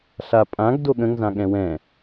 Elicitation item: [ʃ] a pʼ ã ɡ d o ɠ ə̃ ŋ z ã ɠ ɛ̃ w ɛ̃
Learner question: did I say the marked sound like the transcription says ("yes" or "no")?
no